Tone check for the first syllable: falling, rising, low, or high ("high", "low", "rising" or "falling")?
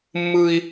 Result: high